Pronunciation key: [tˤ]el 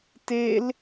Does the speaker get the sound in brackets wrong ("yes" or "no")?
yes